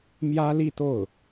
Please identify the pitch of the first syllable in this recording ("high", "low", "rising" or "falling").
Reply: high